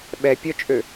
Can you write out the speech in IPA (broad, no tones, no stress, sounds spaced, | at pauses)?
ɓ ɛ pʲ œ t͡ʃʼ ø